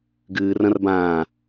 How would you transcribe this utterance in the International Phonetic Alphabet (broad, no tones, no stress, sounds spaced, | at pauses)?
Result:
ɡ ɨː r ɐ̃ r b ãː